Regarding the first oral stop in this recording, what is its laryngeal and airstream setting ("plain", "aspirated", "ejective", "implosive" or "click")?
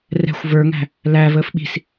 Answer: implosive